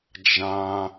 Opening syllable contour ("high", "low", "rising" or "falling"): high